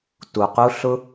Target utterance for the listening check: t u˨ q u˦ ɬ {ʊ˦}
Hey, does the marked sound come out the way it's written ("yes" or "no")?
yes